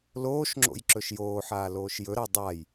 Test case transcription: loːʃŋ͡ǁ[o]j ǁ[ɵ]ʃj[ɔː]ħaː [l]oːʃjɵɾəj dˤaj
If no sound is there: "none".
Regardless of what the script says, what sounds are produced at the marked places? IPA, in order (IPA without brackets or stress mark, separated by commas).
o̰, ɵ, oː, l